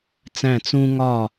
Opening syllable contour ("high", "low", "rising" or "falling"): falling